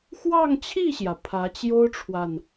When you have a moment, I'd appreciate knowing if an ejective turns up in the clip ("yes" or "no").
no